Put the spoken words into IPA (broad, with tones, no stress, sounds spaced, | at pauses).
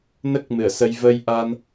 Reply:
n ə˦˥ k̚ m ɨ˨˩˨ ə̯ s ə˧ j v ə˧ j ʔ a˧ n